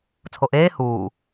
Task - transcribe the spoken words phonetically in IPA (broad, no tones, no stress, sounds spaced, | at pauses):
t͡sʰ o ʔ eː h uː